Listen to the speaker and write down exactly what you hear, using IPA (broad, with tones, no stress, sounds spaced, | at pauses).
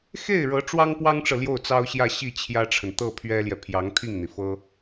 x e˥˩ ɪ̯ ɻ ɤ˧˥ ʈ͡ʂ w ɑ˥ ŋ p w ɑ˥ ŋ ʈ͡ʂ ɤ˨ l j o˥˩ ʊ̯ t͡s ɑ˥ ʊ̯ ɕ j ä˥˧ ɕ i˥˩ t͡ɕʰ j ä˥ ʈ͡ʂʰ ə˨ n t̪ ɤ˥˩ pʰ ɥ ɛ˥ l j ɛ˨ pʰ j ɑ˧˥ ŋ t̪ʰ i˥˩ ŋ n̪ i˩ f ɤ˥